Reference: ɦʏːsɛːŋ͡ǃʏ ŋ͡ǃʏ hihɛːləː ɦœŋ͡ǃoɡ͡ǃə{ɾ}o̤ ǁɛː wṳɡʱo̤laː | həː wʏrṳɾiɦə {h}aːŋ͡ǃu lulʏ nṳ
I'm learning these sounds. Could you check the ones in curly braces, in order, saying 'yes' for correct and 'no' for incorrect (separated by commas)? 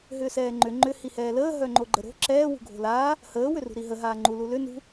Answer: yes, no